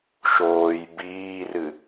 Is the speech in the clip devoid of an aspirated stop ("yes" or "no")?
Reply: yes